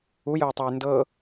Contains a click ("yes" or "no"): no